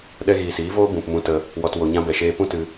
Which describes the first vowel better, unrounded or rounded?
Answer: unrounded